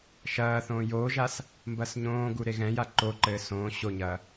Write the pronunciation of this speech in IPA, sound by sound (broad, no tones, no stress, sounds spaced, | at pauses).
ʃ ɐː θ õː j oː ʒ a s | m b ɐː s ɲ õː ɡ u ɾ e ɣ ɛ̃ j a ǃ o ǃ ɘː s õː ɕ o ɲ ɐː